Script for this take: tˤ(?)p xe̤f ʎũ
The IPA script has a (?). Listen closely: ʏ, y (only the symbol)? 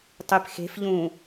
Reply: y